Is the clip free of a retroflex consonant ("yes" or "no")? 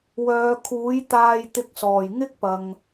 yes